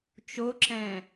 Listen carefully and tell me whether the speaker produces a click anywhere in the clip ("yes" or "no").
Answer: yes